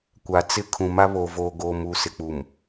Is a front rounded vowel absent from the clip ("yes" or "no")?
yes